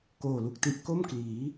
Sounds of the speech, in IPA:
koː˨˩lu˨˩k̚ti˦˥ʔ ko˥˩mkliː˩˦

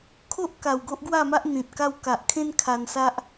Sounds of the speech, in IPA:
kʰo˦ʔ ka˨˩wɡo˦ʔɡwa˥˧ma˦ʔ n̪ĩ˨t̚ ka˧wka˨ʔkʰẽ˦n kʰa˧nsa˦ʔ

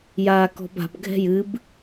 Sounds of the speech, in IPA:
jaːkɔ̤ba̤b ɡʱɛ̤jɨb

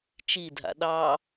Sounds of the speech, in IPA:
t͡ʃidʱa̰ ɗɑ

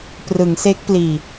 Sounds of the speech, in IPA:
prɯ˩˦ŋse˦˥k̚pliː˨˩

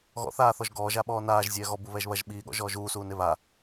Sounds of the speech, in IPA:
ɣɔ̰ θaːθɔʒ ɡɔːʒa ɓɔːnaːʒ zʲɛːɣɔ buβɛʒβɐʒ ɓiːɠɔ̰ ʒɔːʒuːsuː neβa

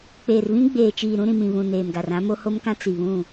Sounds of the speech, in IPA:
k͡peː˨rβĩ˦ɡ͡beː˨t͡ʃiː˨ ɾũ˦ɾĩ˨mĩ˨βũ˨ neː˨mɡa˨r ã˦mo˦ ho˦mkã˦ t͡si˨ βũ˦˨

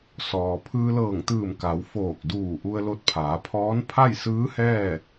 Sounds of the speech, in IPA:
sɔː˩ pʰɯː˧lɤː˧˩ŋt̪ɯː˧˩m ka˩˧w foː˧˩k̚duː˧˩ ʔu˧ə̯lo˧t̚pʰaː˩˧pʰɔː˧˥n pʰa˥˨jsɯː˧˥hɛː˥˨

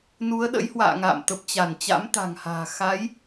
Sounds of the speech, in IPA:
nu˨˦ə̯ɗə̰˧˥jhwa̰ː˧˨ŋa̰ː˧˨m t̪ə˨˩p̚t͡ɕa˧˩n t͡ɕa̰˧˥mt̪a̤˨˩ŋha̤ː˨˩ xa˨˦j

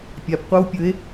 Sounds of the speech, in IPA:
pʲapqʷaw pʲɵe̯

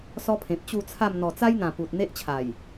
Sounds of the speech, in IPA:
sɔ˦pʰẽ˨p̚ t͡ɕu˥˧t͡sʰa˥˧m n̪ɔ˨˩t͡sa˦jn̪ã˨˩ pu˨t̚ n̪e˦ʔt͡ɕʰa˨˩j

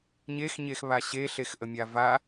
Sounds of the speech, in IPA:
ɲexɲexβa ɕeɬexʔəmʲa va

